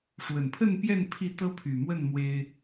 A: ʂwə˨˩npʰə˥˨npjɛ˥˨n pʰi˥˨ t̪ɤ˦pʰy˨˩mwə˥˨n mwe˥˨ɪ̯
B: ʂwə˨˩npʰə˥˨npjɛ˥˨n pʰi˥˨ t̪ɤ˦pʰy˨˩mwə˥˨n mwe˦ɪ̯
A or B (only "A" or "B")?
B